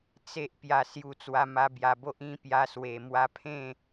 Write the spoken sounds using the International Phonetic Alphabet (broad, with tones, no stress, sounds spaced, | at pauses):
t͡s e˦ ʔ p j a˧ s j u˧ t͡s w a˧ m a˧ b j a˨˩ b o˦ ʔ ĩ˥˧ p j a˧ s w e˨˩ m w a˧ pʰ ẽ˥˧